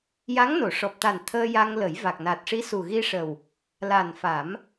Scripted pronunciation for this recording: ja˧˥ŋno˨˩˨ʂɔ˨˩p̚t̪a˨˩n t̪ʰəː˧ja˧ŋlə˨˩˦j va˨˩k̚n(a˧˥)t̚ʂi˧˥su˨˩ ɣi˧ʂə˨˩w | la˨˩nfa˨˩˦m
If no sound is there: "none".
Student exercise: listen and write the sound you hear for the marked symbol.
a˨˩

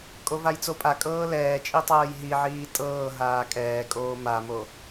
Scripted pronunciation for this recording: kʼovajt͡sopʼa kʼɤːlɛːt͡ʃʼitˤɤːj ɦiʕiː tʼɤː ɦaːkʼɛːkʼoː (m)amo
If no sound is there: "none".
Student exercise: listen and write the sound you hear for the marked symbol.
m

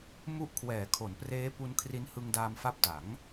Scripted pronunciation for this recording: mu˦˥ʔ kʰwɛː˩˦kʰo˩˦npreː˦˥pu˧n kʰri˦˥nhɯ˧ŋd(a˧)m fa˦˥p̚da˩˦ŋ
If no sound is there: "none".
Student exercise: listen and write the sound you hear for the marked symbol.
aː˧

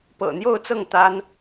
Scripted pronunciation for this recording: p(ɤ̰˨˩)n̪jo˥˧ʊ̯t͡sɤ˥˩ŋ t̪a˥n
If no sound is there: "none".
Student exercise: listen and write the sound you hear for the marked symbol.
ɤ̰˨˩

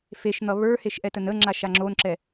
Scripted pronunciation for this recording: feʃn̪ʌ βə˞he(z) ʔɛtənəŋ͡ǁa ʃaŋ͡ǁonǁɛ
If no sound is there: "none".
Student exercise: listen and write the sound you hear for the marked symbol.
ʃ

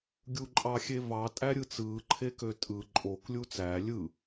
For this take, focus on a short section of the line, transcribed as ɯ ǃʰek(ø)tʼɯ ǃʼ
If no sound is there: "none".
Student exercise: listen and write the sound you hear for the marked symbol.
ø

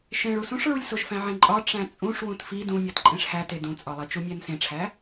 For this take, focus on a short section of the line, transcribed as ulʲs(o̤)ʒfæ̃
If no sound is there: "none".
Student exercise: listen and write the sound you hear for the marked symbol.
o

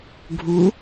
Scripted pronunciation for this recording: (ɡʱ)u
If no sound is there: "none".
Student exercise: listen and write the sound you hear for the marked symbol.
ɡʱ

